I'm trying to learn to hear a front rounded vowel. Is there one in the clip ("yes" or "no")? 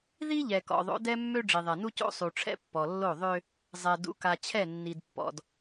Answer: yes